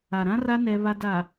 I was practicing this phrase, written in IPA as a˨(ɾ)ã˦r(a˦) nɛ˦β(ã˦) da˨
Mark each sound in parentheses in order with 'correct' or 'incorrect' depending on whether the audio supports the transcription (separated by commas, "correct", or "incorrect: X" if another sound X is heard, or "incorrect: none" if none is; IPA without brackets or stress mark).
correct, correct, incorrect: a˦